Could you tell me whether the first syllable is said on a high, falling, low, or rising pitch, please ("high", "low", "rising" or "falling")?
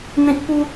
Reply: low